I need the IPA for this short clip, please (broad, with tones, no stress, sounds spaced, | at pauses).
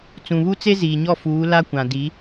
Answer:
t͡s ũ˨ β u˦ t͡s e˦ z iː˨ ɲ ɔ˦˨ f uː˨˦ l a˦ kʷ ã˨ d i˨˦